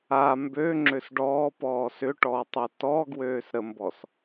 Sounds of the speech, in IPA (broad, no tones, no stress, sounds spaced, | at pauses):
a m b ø ŋ͡ǁ ø s ɖ ɔː p ɔː s ʏ ʈ ɔː tˤ ø t ɔ ɡ w øː s ɾ ə m b ɔ s